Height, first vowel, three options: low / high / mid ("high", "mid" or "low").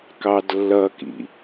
low